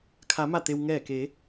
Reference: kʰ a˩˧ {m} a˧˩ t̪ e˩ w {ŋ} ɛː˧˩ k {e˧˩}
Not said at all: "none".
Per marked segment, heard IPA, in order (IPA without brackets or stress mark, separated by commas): m, ŋ, e˩˧